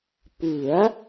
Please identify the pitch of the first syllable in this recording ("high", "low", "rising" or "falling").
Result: rising